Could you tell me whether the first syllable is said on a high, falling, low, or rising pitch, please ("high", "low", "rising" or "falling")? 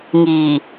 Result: low